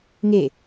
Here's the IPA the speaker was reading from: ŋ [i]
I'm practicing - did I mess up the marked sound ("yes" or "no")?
yes